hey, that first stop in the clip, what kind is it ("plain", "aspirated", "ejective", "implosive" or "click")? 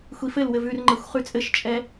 click